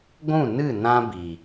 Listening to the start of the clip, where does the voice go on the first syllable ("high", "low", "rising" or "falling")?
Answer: falling